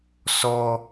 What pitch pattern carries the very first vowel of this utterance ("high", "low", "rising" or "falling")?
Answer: high